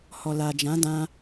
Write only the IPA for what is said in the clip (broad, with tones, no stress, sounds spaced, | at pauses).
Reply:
h ɔ˨ l a˨ d͡ʒ ã˨˦ d ã˧